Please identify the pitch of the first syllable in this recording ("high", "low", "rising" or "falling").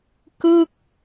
falling